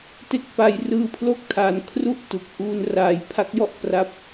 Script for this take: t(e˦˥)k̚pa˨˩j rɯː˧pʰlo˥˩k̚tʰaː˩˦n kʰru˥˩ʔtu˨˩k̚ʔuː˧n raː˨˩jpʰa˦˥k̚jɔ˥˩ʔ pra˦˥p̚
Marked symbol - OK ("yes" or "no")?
yes